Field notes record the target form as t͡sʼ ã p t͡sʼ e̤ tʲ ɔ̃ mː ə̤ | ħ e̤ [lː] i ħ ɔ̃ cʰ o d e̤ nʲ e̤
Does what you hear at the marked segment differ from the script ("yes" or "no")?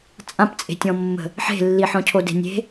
no